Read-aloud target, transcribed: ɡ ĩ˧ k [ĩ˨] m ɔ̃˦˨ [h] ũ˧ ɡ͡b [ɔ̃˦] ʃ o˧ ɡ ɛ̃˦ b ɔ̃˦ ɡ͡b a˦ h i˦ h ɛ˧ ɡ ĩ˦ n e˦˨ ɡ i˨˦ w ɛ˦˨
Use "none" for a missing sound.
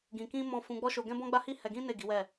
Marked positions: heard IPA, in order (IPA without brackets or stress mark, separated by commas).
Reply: ĩ˦, f, ɔ˦